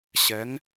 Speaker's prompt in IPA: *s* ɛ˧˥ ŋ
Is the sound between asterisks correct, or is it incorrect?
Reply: incorrect